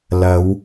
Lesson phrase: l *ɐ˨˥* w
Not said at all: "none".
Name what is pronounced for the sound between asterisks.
ɐ˨˧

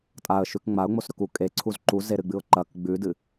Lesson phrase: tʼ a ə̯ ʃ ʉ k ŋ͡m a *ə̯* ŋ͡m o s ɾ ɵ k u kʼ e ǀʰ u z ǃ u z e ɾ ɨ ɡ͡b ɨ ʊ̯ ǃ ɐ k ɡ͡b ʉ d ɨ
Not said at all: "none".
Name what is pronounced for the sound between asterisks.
ʊ̯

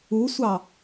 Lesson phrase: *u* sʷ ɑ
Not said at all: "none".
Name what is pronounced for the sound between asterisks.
u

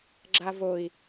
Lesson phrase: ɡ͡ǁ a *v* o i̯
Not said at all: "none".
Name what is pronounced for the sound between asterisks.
v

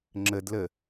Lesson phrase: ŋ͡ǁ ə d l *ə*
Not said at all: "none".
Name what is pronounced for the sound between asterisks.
ə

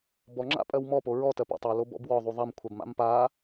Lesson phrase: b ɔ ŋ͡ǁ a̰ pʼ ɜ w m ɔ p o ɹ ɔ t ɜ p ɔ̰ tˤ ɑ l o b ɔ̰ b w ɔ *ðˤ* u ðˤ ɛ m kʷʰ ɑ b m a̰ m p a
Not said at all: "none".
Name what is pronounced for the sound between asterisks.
ðˤ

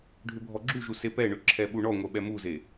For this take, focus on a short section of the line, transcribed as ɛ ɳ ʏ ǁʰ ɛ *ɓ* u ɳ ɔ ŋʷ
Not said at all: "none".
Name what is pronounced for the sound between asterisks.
ɓ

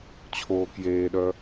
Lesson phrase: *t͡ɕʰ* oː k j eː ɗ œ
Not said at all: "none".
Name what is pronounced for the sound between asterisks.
t͡ɕʰ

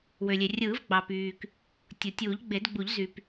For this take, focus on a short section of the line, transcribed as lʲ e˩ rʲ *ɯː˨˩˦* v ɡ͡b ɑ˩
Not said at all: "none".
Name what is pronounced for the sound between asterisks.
ɯː˨˩˦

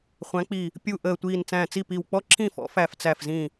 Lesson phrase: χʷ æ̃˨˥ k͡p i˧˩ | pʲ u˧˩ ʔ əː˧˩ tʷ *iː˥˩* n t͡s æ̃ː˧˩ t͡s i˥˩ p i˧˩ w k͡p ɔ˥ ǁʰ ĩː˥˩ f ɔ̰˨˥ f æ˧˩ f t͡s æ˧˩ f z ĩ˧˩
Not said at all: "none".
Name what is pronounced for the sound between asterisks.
iː˧˩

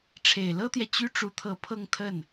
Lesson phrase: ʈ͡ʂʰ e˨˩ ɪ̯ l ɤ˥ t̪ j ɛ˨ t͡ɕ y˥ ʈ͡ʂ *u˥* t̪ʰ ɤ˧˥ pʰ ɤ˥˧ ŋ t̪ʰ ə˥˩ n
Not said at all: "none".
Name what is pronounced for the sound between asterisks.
u˧˥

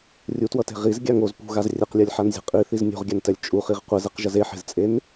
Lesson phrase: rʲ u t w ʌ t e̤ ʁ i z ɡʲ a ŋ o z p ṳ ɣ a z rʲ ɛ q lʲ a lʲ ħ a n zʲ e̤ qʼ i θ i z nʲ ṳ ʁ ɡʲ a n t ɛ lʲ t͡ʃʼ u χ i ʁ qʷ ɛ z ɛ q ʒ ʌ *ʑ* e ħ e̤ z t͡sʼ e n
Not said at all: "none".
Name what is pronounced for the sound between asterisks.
z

